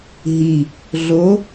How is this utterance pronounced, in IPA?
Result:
ɦ i | ɮ o

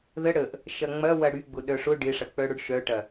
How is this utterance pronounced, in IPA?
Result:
ð ə ɽ ə ʔ | ʃ ɐ ŋ͡m ɐ w ɐ ɽ y ɡ͡b ʊ ɗ œ ʂ ʊ ɖ ɪ ʂ ɐ k͡p œ ɽ ʊ ɖ ʃ œ ʈ ɐ

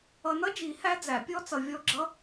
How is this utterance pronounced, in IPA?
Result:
ʌ˨ n ʌ˦˥ d͡ʒ i˨˩˦ h æ˦˥ d͡z æ˨˩˦ pʲ ɔ˦˥ t͡s ʌ˨ vʲ ɔ˦˥ ɡ͡ǁ ʌ˦˥

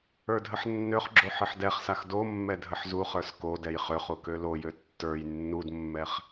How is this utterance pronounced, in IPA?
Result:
ə˞ dʱ ə ħ nː ø χ ɡ͡ǁ o ħ ɘ ħ d ɛ χ s a x d o mː ɛ dʱ ə ħ z u χ ə˞ s k o d ɛ j χ ø χ u k ø l o j ø tː ə˞ j nː u d mː ɛ χ

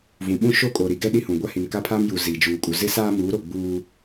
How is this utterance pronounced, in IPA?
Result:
v ũ˨ ɓ ũ˦ ʃ o˦ kʼ o˨ ɾ i˨ ɡ ɛ˦ ɗ i˦ h ũ˨ ɡʷ a˦ h i˨ n k a˦ pʰ aː˦ m j u˨ z iː˨ d͡ʒ uː˨ kʼ u˨ z ɪ˦ s aː˦ m uː˨˦ ɾ o˨ ɡ͡b uː˦

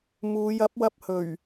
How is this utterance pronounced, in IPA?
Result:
m uː˨˧ j ɐ˨˥ p̚ w ɐ˧ p̚ h ɵ˨˩ ɥ

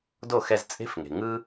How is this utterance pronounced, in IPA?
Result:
d o˥˩ x ɛ˧ z t͡sʼ e̤˥ f ŋ e̤˩ ŋ ɯ˥

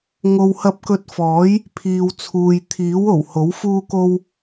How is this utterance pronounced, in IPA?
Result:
ŋ o˨ w h ɐ˧ p̚ k ɵ˧ t̚ f ɔː˨˥ j | pʰ iː˨ w t͡sʰ uː˨ j t̪ʰ iː˨˥ w o˨˩ w h o˨˥ w f uː˥ k o˥ w

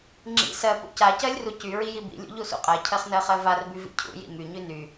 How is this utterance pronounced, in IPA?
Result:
ŋ͡ǁ ḭ s ɜ p ṵ c a c ɜ lʲ r u c y ɹ i j i b ḭ lʲ ṵ ʎ u s ṵ qʼ ɜ cʰ ɜ χ n ɜ χ ɜ v a r b y v ḭ cʰ ṵ j ḭ m y ɲ y n y

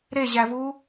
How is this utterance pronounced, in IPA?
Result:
ɾ e ʑ æ v u

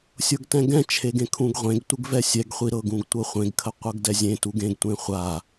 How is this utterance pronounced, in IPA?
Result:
sʲ ɤ ɡ t ɛ̃ ɡ ɛ̃ t͡ʃʰ e ɡ ẽ kʰ ũ ɡ ʁʷ ẽ ɡ tʷ ɪ ɡ v ɛ sʲ ɛ ɡ χʷ i ɾ ɤ ɡ ũ ɡ tʷ ɤ χʷ ẽ ɡ kʰ ə qʷ ɤ ɡ d ɛ zʲ ẽ t u ɡ ẽ ɡ tʷ ẽ χʷ a

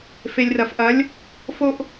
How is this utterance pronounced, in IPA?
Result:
f e˨ lʲ r ɐ˨ f ʔ ɐ˨˦ lʲ | f o˧ ʔ

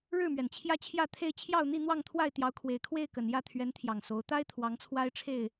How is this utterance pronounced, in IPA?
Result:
ɻ ɻ̩˥˨ m ɥ ɛ˩ n t͡ɕʰ j ä˦ t͡ɕʰ j ä˥˨ t̪ʰ e˥˨ ɪ̯ t͡ɕʰ j ɑ˥˨ ʊ̯ n̪ i˥˨ n̪ w ɑ˥˨ ŋ t̪ʰ w a˥˨ ɪ̯ t̪ j ɑ˨˦ ʊ̯ kʰ w e˨˩ ɪ̯ kʰ w e˥˨ ɪ̯ k ə˨˩ n j ä˥˨ t̪ʰ ɥ ɛ˨˦ n t̪ʰ j ɑ˨˩ ŋ s o˨˦ ʊ̯ t̪ a˦ ɪ̯ t̪ʰ w ɑ˨˦ ŋ t͡sʰ w a˦ ɪ̯ ʈ͡ʂʰ e˥˨ ɪ̯

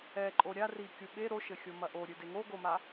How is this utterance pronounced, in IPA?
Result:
ɛ ǃʼ o ɾʲ a r i kʲ u ɓ e ɾ o ʃ ɘ xʲ o m ɐ ʔ o ɾʲ ɨ d e ŋ o ɡ o m a

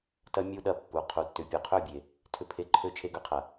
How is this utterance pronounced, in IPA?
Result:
t ɐ˦ mʲ u˦ ɗ ɐ˦˨ pː u˨ qʰ u˨ tː ʏ˨ pʲ u˨ qʰ ø˦˨ bʲ e˨ | tʰ ʏ˧ pʰ e˧ ǃʰ ø˦ t͡ʃʰ e˧ ɡ ø˨ qʰ ɐ˨

